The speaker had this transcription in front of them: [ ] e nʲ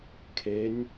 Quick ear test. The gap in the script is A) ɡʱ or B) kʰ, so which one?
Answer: B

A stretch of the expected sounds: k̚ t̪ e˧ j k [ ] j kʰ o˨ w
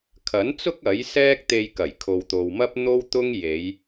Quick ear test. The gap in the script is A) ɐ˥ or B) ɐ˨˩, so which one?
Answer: B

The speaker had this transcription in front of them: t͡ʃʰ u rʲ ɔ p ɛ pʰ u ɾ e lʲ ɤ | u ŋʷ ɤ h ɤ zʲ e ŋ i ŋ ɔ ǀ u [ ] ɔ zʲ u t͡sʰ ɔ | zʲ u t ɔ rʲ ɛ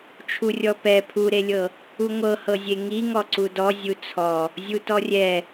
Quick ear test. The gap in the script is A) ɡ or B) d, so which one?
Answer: B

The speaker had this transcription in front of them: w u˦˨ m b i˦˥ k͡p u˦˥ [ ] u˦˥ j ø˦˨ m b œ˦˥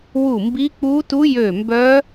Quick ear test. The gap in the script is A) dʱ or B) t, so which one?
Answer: B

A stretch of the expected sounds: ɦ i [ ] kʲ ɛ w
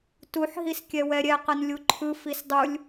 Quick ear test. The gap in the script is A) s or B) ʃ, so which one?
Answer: A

